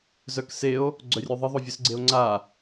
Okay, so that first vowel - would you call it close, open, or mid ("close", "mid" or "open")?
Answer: mid